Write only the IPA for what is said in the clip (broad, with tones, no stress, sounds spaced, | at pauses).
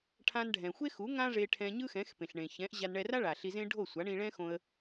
ʈʰ ã˧ n ɖʱ ɛ̃˩ xʷ e˥ x u˩˥ ŋ ã˥ ʐ e˧ ʈʰ ɛ̃˧ ɲ ɯ˥ x ɛ̃˩˥ x p ẽ˩ ɬ ɳ ẽ˩ ç ɛ̃˩˥ ʔ ʑ a˧ n ɳ ɛ˧ r a˥ ɭ a˩ ɬ i˧ z ẽ˥ ɖʱ o˥˩ sʷ a˩˥ ɳ ĩ˧ ɭ ɛ̃˥ x õ˧ ə̯